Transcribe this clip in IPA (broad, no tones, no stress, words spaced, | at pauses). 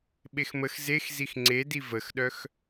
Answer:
ɓexməx zexzix ŋ͡ǀedi vəxɗœx